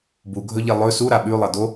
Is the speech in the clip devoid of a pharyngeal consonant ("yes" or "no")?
yes